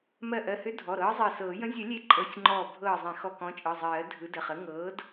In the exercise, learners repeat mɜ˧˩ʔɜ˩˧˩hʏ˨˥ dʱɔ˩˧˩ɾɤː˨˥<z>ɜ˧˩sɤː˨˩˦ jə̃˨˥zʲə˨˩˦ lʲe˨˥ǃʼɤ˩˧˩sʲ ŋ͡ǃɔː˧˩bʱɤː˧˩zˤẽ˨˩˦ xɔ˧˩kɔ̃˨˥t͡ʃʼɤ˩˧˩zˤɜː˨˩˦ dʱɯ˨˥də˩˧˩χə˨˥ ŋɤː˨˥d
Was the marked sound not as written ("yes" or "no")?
yes